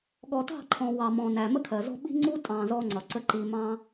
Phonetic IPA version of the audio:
ɠɔ˨tɑ̤˦˨ǃʰɔ̃˨ wɑ˨mɔ̃˨næ˨ mə˦kʰɜ˨zɔ̤˦ ɓi̤˦ŋ͡ǀu˦tʼɑ̃˨ zɔ˦ŋ͡ǀʌ˨ǀə˦ ǃi˨ mɑ̃˦

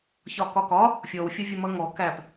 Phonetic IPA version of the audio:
çɒkɒkɒ | fʲɔwfʲʌ vʲʌmʌŋɔ kæp

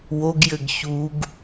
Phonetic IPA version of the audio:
woɡjɘɡ çuɡ

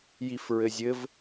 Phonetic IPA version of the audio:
jifɹɘzʲɘv

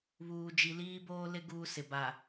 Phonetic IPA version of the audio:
βuː˨d͡ʒi˨liː˦ boː˦lɪ˦ ɡuː˦sɪ˨ ba˨

